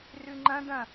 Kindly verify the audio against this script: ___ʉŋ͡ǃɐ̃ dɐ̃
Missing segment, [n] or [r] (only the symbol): r